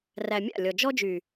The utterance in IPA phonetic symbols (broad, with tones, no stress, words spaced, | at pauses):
ræ˨ mʲa̰˦˨lʲɔ˨ d͡ʒɔ˦d͡ʒy˨